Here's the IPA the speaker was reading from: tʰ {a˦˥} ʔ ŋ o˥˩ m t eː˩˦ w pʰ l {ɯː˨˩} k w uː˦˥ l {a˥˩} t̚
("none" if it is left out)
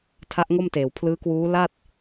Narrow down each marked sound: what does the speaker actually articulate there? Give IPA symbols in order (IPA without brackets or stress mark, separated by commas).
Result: a˦˥, ɯː˦˥, a˥˩